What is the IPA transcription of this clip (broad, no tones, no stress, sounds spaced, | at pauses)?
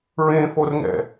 ɹ ẽ f o r ŋ ɛ̰